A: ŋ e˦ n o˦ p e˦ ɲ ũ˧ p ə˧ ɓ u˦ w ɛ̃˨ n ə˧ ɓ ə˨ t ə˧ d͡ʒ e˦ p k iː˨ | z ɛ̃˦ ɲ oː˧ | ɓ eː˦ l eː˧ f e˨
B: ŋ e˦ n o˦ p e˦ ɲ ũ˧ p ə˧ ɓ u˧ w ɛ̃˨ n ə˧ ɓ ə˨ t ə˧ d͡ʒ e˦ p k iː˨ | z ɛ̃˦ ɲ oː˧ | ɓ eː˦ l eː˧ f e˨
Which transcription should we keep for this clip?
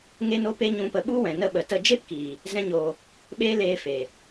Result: A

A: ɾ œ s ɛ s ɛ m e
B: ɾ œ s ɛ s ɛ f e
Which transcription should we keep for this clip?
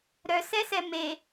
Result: A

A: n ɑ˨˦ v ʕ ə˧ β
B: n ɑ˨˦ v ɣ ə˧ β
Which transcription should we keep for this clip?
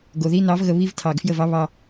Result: B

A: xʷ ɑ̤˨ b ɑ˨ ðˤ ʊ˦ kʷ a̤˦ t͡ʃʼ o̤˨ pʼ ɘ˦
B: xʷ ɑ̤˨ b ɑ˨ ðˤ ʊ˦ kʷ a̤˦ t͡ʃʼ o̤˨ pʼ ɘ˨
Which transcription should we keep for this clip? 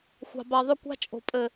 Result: B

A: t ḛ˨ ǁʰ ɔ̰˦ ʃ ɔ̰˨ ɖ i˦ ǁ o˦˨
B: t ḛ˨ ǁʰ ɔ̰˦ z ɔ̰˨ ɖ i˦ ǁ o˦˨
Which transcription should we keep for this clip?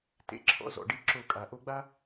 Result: B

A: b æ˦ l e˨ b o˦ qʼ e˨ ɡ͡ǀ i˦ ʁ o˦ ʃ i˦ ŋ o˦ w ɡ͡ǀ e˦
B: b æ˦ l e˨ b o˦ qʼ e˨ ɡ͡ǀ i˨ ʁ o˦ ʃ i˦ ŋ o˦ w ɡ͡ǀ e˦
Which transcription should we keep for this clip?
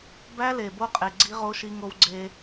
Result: A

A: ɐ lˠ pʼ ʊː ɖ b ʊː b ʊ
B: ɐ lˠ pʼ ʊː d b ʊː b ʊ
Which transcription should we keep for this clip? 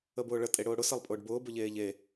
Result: A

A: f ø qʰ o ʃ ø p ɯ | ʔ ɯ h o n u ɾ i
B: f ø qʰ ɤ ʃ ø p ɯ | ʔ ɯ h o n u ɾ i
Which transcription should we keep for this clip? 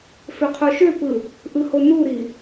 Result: A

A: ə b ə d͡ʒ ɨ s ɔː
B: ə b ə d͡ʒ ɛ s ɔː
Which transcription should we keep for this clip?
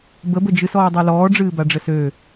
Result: A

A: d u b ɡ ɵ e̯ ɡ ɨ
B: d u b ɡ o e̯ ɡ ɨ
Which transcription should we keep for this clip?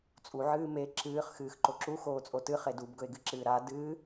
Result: A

